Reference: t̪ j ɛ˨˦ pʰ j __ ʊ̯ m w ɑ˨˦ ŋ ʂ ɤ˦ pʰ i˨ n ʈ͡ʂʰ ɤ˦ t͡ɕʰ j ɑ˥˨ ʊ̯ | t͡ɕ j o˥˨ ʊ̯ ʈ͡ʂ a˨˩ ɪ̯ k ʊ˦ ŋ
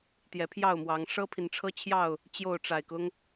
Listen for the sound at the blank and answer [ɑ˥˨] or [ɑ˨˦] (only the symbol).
ɑ˥˨